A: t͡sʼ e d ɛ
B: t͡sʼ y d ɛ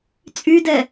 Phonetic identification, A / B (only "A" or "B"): B